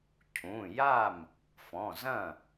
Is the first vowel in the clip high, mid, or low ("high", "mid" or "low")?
high